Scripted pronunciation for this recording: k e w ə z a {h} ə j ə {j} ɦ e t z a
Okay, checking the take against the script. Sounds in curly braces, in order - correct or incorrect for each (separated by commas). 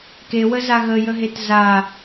incorrect, incorrect